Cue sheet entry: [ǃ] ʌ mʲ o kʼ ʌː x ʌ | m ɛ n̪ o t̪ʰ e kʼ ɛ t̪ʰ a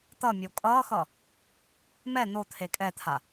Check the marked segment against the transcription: incorrect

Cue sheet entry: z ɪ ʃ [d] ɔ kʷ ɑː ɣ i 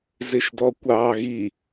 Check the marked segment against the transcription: correct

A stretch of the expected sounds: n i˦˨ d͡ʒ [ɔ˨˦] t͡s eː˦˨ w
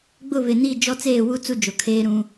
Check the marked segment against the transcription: incorrect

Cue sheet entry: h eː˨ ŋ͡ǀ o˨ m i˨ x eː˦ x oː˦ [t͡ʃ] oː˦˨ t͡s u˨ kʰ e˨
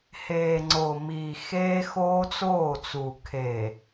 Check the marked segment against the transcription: incorrect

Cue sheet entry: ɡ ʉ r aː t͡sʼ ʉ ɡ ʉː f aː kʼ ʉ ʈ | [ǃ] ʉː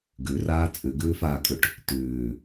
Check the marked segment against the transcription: incorrect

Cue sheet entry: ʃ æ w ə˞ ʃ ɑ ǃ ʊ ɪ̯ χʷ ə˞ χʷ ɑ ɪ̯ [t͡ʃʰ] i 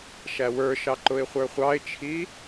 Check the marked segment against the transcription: correct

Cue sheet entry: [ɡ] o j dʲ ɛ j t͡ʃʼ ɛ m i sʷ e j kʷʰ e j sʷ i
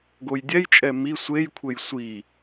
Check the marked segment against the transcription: correct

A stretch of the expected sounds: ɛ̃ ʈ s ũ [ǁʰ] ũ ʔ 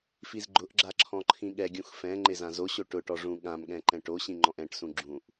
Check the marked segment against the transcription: incorrect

